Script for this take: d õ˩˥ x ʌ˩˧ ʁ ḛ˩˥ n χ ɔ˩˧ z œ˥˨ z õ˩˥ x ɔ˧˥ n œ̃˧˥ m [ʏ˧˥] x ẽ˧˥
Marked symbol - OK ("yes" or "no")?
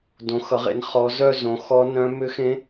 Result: yes